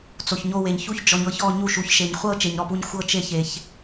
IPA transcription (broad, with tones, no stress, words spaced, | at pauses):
t͡so˩çɲo˦˨we˩ɲ çu˦˨çd͡ʒɔ˩ɲɤ˦˨çɔ˦˨ ɲu˦˨ ʃu˩çʃe˩ɲ χʷɤ˦˨ t͡ʃe˩ɲ ɾɔ˦˨pu˦˨ɲ xʷɤ˦˨t͡ʃe˦˨ çe˩ç